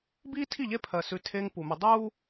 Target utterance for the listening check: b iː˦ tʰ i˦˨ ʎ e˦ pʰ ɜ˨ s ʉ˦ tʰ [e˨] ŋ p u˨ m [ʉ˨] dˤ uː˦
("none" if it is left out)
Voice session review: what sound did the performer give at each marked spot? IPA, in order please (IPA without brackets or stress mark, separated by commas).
e˦, ʉ˨